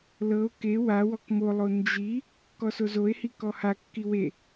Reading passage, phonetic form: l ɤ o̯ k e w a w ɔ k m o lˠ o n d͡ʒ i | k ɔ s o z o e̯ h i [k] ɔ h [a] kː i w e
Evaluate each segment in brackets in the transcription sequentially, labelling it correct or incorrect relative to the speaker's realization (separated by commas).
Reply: correct, correct